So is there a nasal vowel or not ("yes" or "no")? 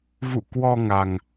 no